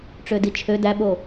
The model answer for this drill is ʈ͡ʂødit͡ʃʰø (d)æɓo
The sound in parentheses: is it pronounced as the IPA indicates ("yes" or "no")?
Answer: yes